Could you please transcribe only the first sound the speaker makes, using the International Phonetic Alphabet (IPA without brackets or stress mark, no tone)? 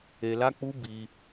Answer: e